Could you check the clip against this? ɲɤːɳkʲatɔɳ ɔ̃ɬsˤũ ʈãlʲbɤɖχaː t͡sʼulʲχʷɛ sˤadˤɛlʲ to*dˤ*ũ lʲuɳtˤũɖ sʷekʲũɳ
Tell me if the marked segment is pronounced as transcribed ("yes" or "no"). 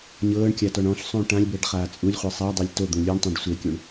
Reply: no